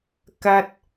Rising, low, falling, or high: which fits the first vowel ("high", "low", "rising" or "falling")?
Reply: high